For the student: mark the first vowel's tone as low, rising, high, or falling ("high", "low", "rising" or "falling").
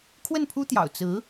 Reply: falling